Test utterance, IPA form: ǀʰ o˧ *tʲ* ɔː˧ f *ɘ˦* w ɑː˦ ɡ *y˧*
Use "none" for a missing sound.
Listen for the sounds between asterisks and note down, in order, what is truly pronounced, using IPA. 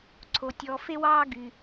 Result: tʲ, e˦, y˧

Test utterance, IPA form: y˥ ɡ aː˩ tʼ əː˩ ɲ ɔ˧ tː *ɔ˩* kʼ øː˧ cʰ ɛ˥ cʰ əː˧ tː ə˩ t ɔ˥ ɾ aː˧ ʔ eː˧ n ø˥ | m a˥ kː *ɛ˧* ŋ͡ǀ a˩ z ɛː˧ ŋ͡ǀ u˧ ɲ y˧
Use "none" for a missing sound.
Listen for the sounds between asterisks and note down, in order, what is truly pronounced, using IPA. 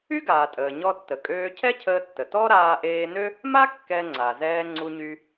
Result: ə˩, ɛ˧

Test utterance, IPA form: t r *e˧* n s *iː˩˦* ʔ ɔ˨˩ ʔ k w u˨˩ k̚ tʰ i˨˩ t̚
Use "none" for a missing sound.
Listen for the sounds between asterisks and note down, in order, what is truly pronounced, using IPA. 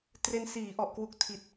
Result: e˧, iː˩˦

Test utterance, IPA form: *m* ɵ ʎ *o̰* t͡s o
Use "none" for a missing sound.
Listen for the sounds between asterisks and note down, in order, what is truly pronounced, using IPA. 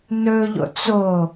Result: n, o̰

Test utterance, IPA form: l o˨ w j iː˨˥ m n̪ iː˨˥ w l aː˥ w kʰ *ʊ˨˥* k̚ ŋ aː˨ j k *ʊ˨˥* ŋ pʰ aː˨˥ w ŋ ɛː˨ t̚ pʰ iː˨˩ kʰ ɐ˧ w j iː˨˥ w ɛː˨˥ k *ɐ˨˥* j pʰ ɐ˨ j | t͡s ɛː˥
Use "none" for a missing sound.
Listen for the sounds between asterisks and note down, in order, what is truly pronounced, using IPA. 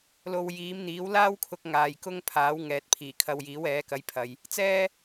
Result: ʊ˨˥, ʊ˥, ɐ˨˥

